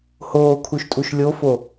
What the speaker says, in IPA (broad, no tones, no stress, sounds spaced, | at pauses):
h oː kʰ u ʃ tʼ u ʃ lʲ o f o